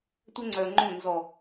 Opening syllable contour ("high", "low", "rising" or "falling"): high